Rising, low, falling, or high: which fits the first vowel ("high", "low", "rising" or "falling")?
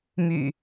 low